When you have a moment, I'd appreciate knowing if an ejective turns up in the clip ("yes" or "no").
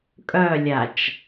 yes